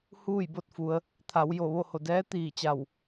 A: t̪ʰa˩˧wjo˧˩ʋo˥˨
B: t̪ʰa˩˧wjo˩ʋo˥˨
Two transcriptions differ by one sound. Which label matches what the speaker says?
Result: A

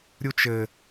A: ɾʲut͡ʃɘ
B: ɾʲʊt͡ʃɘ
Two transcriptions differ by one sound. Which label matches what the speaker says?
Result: A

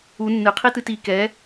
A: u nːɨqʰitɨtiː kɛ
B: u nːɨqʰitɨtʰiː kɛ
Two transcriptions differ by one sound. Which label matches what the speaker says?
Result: A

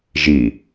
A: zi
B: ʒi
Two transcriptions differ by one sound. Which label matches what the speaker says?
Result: B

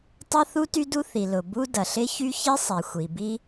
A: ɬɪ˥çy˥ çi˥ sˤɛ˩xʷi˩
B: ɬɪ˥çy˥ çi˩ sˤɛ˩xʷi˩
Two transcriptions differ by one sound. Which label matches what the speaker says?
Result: A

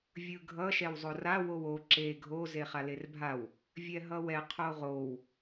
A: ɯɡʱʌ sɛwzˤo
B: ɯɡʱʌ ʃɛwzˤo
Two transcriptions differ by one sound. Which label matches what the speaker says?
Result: B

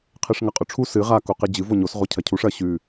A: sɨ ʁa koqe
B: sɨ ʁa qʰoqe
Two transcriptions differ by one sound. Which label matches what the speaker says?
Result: A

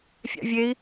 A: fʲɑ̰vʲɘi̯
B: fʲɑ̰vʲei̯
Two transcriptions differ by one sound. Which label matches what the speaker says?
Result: B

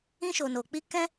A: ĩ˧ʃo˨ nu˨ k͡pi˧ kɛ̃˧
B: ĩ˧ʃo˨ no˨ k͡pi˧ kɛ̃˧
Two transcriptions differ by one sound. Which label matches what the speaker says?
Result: B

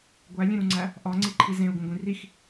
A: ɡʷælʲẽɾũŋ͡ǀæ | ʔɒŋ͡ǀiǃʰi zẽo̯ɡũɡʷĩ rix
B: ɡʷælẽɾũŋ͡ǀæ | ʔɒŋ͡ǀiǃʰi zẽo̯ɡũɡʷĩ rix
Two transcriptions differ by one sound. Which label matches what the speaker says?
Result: A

